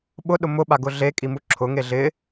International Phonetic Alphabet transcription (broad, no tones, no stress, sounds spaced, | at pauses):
ɓ ʊ ɗ ʊ m ʊ ɓ a ɡ ʊ ɮ e kʼ i m u ǁʰ ʊ ŋ e ɮ ɪ